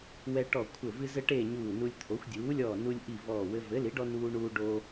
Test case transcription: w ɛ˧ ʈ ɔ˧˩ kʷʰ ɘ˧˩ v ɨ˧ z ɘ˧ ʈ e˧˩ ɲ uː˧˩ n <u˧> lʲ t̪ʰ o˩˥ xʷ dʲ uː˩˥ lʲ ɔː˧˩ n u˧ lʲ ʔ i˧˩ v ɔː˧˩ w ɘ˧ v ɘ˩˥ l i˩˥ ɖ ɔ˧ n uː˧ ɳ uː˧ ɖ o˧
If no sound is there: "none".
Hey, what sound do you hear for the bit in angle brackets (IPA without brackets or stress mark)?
u˧